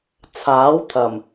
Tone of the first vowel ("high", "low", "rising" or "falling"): rising